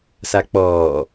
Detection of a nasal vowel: absent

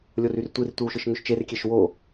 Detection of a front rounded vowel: present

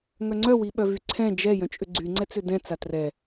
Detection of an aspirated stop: present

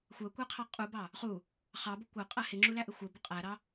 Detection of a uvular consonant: present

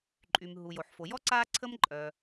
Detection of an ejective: present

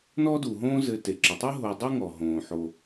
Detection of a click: present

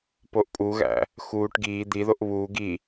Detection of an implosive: absent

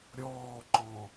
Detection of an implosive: absent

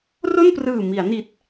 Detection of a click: absent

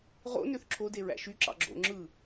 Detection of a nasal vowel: absent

